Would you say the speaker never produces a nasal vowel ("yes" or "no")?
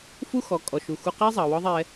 yes